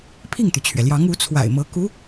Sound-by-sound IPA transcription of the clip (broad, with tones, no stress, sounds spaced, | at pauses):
pʰ i˥˩ ŋ t̪ y˩ t͡ɕʰ ɥ ɛ˩ l j ɑ˧˥ ŋ u˧˥ t͡sʰ w a̰˨˩ ɪ̯ m ɤ˧˥ k u˧˥